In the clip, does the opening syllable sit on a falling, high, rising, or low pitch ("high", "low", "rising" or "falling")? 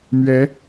rising